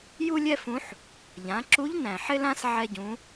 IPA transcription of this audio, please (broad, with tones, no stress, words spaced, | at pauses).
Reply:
ju˥lʲɛ˥fũ˧˥ħ | ʎã˩˧ǁu˧˥ʎ næ̃˩ħɪ˥lã˥s ʕɛ˧ɟũ˩˧